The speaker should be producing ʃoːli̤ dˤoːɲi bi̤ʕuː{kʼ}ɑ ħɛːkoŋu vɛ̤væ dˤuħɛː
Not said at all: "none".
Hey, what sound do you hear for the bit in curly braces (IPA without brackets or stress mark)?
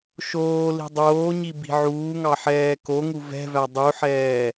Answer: ŋ